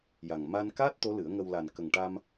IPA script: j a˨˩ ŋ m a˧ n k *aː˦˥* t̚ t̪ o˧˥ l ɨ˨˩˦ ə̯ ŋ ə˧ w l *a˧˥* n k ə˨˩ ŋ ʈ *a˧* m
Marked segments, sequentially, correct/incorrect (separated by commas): correct, incorrect, correct